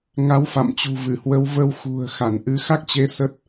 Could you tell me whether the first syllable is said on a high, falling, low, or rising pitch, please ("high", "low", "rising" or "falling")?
rising